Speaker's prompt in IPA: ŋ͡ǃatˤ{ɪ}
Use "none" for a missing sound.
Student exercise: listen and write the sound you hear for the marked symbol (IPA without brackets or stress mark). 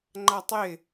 ɪ